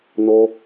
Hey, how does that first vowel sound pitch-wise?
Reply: high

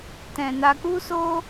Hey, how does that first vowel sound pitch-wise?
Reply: low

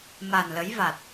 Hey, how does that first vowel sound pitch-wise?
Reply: low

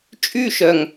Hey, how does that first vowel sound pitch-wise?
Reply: falling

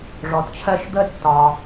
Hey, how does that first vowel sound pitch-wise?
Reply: low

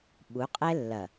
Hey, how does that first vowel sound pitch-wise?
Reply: rising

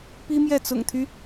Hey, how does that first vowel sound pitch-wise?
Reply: high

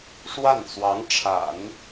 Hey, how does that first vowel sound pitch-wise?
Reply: falling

